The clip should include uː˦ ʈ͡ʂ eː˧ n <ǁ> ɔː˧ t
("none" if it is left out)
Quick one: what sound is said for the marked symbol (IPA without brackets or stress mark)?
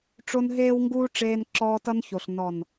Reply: ǁ